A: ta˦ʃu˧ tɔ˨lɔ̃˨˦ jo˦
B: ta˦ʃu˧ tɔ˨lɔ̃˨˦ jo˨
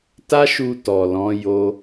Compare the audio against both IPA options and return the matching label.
A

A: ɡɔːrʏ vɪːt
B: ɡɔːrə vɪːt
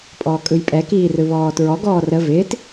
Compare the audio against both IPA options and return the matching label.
B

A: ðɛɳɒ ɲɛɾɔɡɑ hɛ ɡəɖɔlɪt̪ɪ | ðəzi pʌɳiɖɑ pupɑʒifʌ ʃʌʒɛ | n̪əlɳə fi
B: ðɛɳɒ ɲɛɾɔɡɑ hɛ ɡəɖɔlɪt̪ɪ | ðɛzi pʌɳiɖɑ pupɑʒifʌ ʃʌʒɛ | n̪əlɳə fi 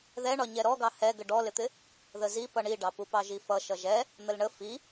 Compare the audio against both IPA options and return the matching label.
A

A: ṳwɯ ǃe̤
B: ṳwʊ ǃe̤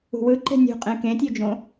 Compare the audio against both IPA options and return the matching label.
A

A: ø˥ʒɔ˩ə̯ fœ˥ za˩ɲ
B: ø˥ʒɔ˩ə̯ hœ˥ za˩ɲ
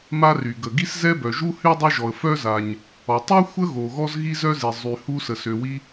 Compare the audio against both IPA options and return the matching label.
A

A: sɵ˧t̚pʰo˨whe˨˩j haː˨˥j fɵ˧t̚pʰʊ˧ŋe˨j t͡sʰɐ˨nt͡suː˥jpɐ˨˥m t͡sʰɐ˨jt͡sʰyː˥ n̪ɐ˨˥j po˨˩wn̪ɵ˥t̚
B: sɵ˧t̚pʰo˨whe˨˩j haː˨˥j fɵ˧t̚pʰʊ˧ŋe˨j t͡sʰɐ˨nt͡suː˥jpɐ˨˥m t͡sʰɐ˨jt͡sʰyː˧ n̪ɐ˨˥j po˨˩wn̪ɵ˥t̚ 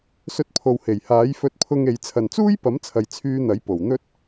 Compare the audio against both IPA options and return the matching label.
B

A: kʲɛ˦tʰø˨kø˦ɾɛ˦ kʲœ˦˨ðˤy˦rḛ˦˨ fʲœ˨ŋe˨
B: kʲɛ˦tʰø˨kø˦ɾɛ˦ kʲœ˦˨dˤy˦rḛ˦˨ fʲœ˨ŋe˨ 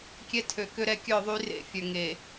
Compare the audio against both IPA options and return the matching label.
A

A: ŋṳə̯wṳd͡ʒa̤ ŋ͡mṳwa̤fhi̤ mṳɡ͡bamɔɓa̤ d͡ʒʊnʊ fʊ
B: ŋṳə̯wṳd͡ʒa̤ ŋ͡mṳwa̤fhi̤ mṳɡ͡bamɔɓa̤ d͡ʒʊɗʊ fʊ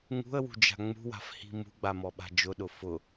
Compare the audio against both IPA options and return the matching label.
B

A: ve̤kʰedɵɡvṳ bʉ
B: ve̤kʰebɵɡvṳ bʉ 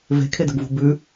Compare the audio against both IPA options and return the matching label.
A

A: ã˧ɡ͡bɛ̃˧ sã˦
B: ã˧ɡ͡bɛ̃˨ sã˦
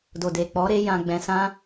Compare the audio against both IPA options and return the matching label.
A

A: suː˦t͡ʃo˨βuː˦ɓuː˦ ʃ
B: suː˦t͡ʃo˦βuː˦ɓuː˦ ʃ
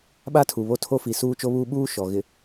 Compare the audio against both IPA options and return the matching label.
B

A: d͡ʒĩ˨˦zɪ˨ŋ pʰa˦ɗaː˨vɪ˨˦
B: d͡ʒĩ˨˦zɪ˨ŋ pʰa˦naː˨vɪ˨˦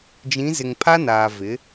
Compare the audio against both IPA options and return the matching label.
B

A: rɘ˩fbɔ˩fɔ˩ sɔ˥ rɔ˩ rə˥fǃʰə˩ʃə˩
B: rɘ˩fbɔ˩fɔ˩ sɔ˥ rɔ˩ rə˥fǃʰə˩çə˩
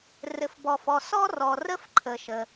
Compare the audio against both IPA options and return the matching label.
A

